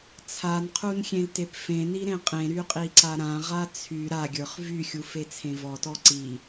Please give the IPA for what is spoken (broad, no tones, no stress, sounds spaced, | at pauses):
t͡sʰ a n qʰ u n xʲ ẽ l t e p f ẽ n i ɾ ẽ qʼ ẽ ɾ y qʼ i ǀ a ɾ ã ʁ a t͡sʰ y ɾ a ɡʲ ə˞ χ v y xʲ u f e t͡sʰ ẽ v ɔ t ɔ ǀ i